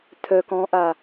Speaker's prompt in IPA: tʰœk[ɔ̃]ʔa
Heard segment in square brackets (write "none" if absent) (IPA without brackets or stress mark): ɔ̃